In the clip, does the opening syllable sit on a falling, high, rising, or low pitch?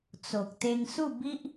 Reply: low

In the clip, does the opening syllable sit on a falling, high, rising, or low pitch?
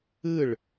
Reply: falling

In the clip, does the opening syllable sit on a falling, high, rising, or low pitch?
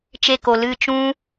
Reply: falling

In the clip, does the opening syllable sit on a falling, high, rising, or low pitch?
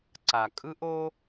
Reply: low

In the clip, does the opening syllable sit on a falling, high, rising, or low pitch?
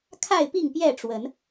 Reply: falling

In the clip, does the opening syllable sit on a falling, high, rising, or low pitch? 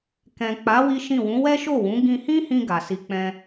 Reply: low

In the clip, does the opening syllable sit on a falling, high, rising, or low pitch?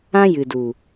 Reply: high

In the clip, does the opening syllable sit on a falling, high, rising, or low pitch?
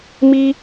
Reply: high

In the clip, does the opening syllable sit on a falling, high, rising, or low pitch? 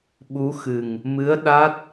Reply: rising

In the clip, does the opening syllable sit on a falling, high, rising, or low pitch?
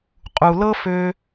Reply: low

